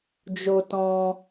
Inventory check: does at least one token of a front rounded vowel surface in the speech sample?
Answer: no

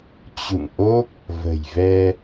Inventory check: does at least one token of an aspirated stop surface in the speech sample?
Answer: no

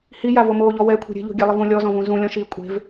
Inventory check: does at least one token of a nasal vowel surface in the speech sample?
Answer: yes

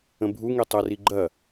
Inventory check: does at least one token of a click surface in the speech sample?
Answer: yes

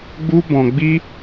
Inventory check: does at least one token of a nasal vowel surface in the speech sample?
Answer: yes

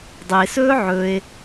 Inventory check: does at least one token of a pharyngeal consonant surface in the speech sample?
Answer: yes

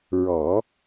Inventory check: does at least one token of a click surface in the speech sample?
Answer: no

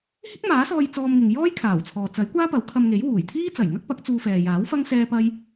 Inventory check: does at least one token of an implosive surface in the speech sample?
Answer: no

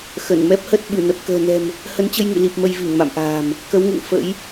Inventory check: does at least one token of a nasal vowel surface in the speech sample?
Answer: no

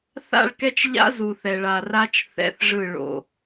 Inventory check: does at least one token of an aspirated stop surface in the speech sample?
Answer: no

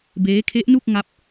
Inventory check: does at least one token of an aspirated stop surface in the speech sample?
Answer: yes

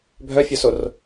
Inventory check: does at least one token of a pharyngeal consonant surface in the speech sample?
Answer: no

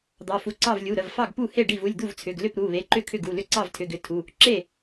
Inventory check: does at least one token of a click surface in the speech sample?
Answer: yes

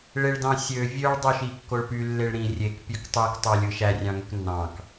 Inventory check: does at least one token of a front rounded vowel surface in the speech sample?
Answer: yes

